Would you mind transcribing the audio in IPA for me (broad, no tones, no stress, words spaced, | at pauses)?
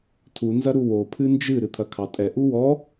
tʰu nzɐɾuwo pʰɨnd͡ʒɨ ɾɨt̪ʰɐkʰɑtʼɛ ʔuwɔ